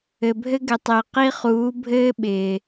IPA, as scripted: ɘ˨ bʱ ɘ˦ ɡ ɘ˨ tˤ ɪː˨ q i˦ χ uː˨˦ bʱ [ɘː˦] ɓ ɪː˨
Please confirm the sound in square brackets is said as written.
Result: yes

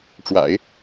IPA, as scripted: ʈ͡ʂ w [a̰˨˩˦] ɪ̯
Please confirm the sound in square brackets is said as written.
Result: yes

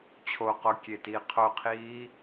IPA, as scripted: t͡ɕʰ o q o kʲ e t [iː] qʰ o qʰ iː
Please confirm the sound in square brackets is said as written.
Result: yes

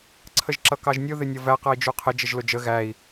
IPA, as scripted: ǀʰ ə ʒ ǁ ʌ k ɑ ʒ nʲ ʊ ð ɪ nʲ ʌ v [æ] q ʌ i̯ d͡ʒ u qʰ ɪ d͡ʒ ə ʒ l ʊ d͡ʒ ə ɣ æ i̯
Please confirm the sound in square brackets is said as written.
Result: yes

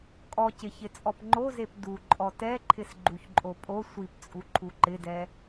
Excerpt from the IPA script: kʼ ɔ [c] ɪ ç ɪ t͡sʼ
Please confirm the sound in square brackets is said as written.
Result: yes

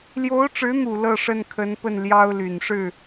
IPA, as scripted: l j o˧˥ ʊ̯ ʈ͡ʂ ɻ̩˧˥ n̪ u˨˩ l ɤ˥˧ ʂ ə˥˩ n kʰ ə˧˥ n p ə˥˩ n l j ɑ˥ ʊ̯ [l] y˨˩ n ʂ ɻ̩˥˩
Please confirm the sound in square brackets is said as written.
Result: yes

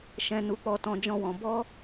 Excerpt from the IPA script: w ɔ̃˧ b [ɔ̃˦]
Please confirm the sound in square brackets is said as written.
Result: no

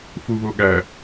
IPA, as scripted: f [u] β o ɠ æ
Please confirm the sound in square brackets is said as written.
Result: yes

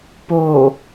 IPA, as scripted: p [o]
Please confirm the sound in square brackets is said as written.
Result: yes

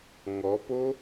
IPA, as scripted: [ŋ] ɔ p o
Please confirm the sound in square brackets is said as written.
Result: yes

